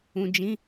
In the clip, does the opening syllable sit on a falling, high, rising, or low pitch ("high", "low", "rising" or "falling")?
low